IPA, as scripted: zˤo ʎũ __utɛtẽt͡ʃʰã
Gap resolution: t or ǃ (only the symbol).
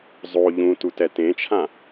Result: t